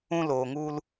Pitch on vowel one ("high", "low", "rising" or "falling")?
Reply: high